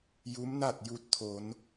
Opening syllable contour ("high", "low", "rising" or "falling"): rising